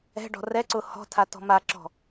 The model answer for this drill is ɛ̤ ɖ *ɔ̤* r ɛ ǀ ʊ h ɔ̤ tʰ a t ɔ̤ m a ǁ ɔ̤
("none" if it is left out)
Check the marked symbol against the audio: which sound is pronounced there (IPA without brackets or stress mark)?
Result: ɔ̤